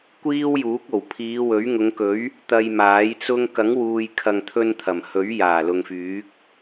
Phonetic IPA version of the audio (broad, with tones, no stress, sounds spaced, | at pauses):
kʷ iː˥ w j uː˨˥ k̚ o˨˩ w pʰ iː˨˧ w ɵ˨˥ ɥ ŋ ʊ˨˧ ŋ k ɵ˨˥ ɥ | t̪ ɐ˧ j m aː˨˥ j t͡s ʊ˥ ŋ k ɐ˨˥ ŋ w uː˨ j kʰ ɐ˨ ŋ t̪ʰ ɵ˧ n t̪ʰ ɐ˨˩ m h ɵ˨˥ ɥ j aː˨˩ l ʊ˨ ŋ f yː˨˥ k̚